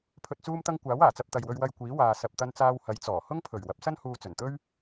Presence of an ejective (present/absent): absent